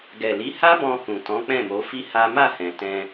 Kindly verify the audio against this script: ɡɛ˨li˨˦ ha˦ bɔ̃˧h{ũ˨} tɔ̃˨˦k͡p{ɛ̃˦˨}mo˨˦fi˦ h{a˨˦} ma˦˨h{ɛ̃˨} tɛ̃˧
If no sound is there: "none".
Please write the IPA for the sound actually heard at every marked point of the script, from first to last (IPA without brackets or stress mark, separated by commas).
ũ˨, ɛ̃˦˨, a˦, ɛ̃˨